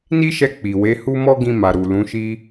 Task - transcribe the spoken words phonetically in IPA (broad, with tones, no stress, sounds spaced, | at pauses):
n i˦ ʃ ɛ˧ k͡p i˨ w e˨˦ h u˦ m ɔ˦ ɡ ĩ˧ m a˨ ɾ u˨ l ũ˨˦ ʃ i˦